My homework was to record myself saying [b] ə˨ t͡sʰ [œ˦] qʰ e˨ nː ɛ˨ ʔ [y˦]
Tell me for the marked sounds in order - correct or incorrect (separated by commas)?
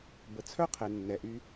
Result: correct, correct, correct